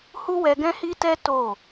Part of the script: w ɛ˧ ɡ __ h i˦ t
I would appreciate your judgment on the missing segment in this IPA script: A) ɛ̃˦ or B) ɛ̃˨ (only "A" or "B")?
A